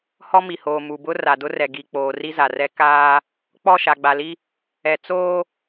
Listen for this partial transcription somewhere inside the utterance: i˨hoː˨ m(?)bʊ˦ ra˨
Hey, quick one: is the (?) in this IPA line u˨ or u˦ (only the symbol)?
u˨